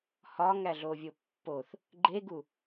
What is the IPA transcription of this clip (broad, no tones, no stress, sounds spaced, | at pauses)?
h ɒ ŋ æ ɮ o vʲ o pː o θ | ɡ͡ǃ e ɡ u